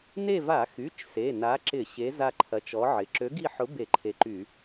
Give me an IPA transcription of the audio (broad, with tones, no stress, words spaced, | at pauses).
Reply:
ne˦˨va˧˩˧xy˩˧˩t͡ʃ se˩˧˩na˨˥ǁɪ˧˩˧ ɕe˨˥ za˦˨ǃʰɐ˨˥t͡ʃɔ˨˥ʕɪ˩˧˩ ǁø˨˥ɡi˦˨ħʊ˨˥ be˧˩˧ǃʰe˨˥ǃy˧˩˧